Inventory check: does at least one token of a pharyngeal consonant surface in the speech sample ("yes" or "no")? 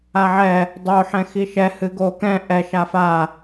yes